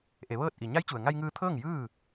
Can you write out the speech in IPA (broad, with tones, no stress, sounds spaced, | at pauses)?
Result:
ʔ e˩˧ ʋ ɤː˥˨ t̚ ʔ i˩ ɲ a˧˥ j t͡ɕ u˩ ə̯ ŋ a˧ j ŋ ɯː˧ t̪ʰ ɤː˥˨ ŋ j ɯː˥˨